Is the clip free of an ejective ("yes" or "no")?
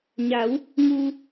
yes